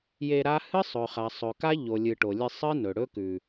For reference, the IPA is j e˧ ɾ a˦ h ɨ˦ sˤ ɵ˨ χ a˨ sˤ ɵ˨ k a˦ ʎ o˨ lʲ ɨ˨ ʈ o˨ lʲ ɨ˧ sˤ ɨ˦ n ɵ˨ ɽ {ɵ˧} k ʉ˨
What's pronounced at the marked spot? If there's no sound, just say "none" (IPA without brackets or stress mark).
ɵ˦